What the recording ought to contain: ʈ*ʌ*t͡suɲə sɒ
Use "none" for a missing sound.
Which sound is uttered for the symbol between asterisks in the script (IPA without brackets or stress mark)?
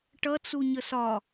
ʌ